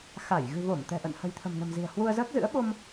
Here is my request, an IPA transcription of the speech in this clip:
xa˧˩j ɣɨ̤˨˩vo˧˩m t̪ɛ̤˨˩ʔə̰˧˨n hə̤˨˩jt̪ʰə̤˨˩mnə̤˨˩mzi̤˨˩ə̯ hwu˧ə̯ zəː˦˥k̚zɨ̰˧˥ə̯ ɓo˧m

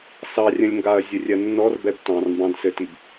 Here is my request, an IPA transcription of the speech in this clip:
sɑrʲə̃lʲŋɡaɐ̯ zʲɘrʲɜnːɔr bɛbtɑ̃r mbɑ̃dsɘtib

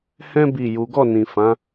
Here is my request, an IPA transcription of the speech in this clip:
hɛ̃˦ bi˦˨ju˨˦ ɡɔ˦˨nĩ˨ fã˨˦

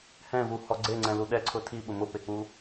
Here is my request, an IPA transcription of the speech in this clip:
hɛ̃vuhɔ ɡ͡ǀeŋ͡ǀɛ̃lu ɗɛǀʰʊ tʰiɓʊ mʊpek͡pu

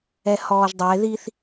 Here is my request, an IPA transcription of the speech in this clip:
ɛhɔːʒdˤɛe̯ðiθ

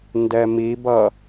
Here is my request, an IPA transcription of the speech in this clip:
ndɛmibʌ

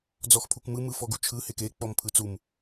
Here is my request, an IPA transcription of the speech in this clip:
d͡zɔxpʰukmɯ mɯfɔɡut͡ʃʰɯ heke k͡pɔmpʰɯt͡sum

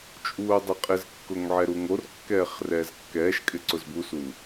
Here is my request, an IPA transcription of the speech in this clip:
t͡ʃʼuːdˤɪqʼɪzkːʊŋ ʕɛɾuŋorkːɛːχ rɛːzkːɛːʃkʼɪ ǀʊzbusu

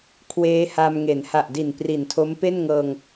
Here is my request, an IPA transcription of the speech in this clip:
kʰweː˦˥ha˧m ŋe˩˦nha˨˩ʔdi˨˩n pri˨˩ntʰo˦˥m pe˥˩nŋɤː˧ŋ

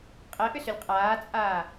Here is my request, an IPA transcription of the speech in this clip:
qʼɛʔʏsʏlʲ qʼaːt͡sʼaː

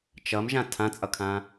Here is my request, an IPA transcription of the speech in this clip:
t͡ʃʌmʒã tʰãt͡sʼʌkʰã

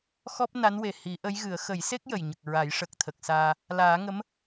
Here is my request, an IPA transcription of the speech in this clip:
xɔ˦˥p̚na˧˥nwe˨˩ hi˨˩˦ʔə˧˥jɣɨ˨˩˦ə̯ xə˨˩˦jse˦˥k̚ jə˨˩jɲə˨˩k̚ɹa˨˩˦j ʂə˨˩k̚t̪ʰə˨˩k̚saː˧ | laː˨˩˦ŋə˧˥m

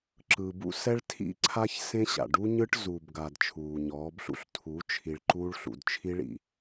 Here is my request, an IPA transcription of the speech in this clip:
ǁɯ˨bṵ˦sɛ˦ɭtʰḭ˦ ǀʰa˦çsẽ˦ɕa̰˨ ɖu˦ɲɯ˦ʈ zuː˨bɡa˨d t͡ʃʰuː˨ɲɔː˨˦bɬṵ˦ɬ tʰu˨˦ t͡ʃʰi˨ɭ ǃuː˦ɭɬṵ˨d t͡ʃʰi˦ɭḭ˨

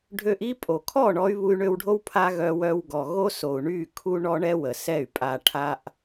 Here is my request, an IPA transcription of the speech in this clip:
ɖʱø˧ʔ i˦pʼo˨ kʰɔ˦˨ɳɔ˧y̯ βu˧y̯ɳø˧wɖʱo˦w pʰa˧ ɣœ˧wœ˧w ɡɔ˨ɣo˦so˨u̯ɳy˦˨ kʰu˦ɳɔ˦ɳɛ˦wə˨ sɛ˦˨y̯ pʼa˧ʈʰa˦ʔ

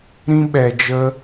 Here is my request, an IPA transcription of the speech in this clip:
ɾĩ˦ɓɛ˧d͡ʒə˦

